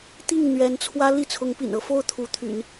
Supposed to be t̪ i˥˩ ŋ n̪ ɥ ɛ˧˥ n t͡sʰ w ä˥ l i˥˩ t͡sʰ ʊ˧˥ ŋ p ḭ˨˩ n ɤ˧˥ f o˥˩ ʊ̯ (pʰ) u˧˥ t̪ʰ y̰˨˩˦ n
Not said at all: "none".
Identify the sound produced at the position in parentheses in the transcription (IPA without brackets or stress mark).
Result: t̪ʰ